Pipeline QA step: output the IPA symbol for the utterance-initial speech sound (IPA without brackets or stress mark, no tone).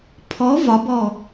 pʰ